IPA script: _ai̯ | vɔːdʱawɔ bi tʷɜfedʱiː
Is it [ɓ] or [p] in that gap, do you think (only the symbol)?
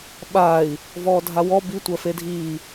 ɓ